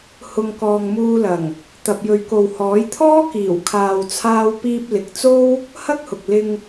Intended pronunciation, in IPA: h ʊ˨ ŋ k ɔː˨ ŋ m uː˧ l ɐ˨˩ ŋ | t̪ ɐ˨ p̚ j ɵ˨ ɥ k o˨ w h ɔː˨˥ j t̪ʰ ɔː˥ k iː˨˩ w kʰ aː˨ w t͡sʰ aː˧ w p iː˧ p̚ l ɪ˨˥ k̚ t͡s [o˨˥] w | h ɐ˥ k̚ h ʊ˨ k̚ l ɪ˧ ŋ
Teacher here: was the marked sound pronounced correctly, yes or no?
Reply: no